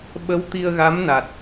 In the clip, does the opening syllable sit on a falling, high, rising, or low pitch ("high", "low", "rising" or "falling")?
rising